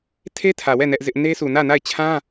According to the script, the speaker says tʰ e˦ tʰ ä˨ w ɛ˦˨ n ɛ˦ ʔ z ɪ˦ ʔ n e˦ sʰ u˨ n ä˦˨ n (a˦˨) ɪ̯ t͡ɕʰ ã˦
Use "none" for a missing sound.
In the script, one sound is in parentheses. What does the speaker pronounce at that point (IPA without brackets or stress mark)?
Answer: a˦˨